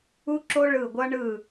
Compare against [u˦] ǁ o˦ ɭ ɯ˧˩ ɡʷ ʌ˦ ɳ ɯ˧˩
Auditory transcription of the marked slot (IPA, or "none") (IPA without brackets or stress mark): u˦